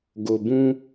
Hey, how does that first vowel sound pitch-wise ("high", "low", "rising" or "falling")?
low